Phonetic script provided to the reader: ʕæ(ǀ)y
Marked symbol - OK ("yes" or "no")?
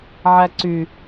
yes